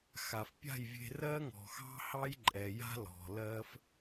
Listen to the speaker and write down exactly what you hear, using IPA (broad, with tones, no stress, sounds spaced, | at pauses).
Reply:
x a˨ f pʲ a̤˦˨ j vʲ e̤˧ r ɜ˦ ŋ ɔ̤˨ x ɑ̤˦ h ɑ˦ j ǃʼ ɛ˨ j a̤˦ l ɔ̤˨ l ɜ˦ f